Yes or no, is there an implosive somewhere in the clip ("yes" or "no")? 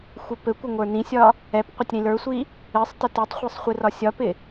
no